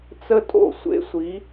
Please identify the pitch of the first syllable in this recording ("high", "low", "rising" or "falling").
high